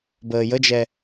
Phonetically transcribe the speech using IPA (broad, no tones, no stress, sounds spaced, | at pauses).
b əː j ə d͡ʒ ɛ